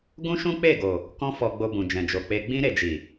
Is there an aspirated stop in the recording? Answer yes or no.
no